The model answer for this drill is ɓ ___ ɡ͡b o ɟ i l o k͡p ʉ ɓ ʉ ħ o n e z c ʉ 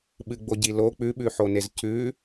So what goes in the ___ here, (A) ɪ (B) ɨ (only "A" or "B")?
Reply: B